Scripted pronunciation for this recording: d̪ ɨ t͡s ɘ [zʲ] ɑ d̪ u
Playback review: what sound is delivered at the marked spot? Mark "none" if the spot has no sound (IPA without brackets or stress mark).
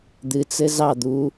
z